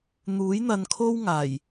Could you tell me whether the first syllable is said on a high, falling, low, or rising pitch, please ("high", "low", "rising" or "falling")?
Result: rising